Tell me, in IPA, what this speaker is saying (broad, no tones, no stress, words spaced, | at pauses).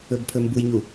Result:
ɵbpʰɵmbujɲu